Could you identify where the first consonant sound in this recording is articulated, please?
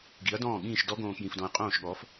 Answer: velar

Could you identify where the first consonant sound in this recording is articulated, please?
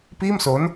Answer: labial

